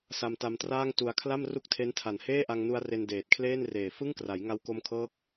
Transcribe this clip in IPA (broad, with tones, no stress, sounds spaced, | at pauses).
s a˧ m t a˧ m t r aː˥˩ ŋ t u˧ a̯ kʰ l a˥˩ m r u˥˩ k̚ tʰ e˦˥ n tʰ a˨˩ n h eː˥˩ ʔ a˧ ŋ n u˧ a̯ r e˧ n d eː˨˩ t̚ kʰ l eː˥˩ n r eː˨˩ f ɯ˥˩ ŋ k r a˩˦ j ŋ a˧ w k o˧ m kʰ ɤː˦˥ k̚